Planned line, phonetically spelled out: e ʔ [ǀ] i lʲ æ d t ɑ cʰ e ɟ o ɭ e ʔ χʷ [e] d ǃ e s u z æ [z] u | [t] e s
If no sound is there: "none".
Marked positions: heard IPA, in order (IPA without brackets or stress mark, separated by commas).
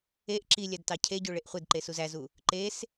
ǁ, e, z, ǃ